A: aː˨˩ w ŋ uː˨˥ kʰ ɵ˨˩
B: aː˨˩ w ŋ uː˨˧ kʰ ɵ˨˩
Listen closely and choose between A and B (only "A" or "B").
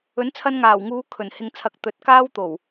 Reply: B